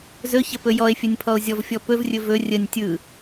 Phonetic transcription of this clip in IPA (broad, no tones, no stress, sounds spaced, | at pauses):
z ɵ ç ə p ɵ j ɔ e̯ fʲ ə nʲ pʰ ɔ o̯ zʲ ɔ v fʲ ɔ p ɵ v rʲ ɵ v ɵ rʲ ə nʲ tʲ ɯ